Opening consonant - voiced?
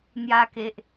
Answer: yes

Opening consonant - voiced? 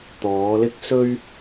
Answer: no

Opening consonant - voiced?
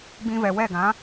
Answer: yes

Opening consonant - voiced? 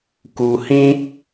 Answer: no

